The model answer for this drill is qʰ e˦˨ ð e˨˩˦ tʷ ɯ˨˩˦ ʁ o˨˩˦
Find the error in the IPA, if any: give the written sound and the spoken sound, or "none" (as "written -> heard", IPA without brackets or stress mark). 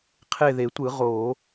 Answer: none